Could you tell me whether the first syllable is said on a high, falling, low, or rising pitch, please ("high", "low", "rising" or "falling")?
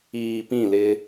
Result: low